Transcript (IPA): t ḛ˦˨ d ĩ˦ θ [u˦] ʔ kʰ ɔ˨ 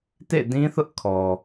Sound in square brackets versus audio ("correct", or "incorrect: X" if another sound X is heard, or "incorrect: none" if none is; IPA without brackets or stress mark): incorrect: ʊ˦